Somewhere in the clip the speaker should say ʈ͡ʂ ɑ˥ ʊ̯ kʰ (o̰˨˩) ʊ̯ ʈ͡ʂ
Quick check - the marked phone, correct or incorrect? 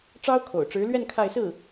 correct